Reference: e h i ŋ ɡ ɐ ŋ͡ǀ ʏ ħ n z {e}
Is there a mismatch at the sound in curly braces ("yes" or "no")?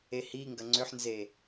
no